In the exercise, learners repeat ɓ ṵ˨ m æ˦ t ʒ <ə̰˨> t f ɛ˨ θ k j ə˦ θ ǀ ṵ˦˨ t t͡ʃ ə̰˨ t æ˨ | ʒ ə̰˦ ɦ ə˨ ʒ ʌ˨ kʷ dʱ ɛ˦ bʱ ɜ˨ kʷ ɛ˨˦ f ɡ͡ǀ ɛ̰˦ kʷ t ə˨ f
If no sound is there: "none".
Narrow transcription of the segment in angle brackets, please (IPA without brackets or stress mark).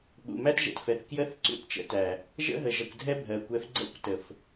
ɛ̰˨